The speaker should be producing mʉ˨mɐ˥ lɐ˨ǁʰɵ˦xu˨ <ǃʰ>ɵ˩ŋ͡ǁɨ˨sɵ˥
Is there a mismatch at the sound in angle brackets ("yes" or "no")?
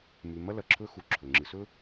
yes